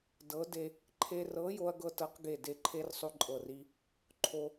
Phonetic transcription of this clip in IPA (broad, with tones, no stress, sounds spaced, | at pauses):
d ɤ˨˥ d e˧ | ǃʰ e˧ r ɤ˨˥ j o˧ ɐ̯ ɡ ɤ˧ t ɤ˨˥ q ɡ e˧˩ d e˧˩ ǃʰ e˧ r sˤ o˧ ǃʼ ɤ˧˩ r i˧ | ǃʰ o˧